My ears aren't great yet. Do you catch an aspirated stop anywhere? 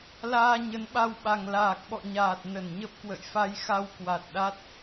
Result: no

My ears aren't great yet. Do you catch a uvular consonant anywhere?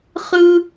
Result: yes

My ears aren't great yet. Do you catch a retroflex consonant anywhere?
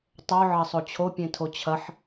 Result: no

